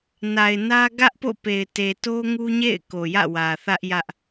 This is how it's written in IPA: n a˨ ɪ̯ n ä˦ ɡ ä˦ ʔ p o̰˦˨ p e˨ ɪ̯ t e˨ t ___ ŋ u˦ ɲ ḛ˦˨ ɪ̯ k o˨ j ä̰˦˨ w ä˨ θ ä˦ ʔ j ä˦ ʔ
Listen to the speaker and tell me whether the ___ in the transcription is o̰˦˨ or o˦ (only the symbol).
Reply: o˦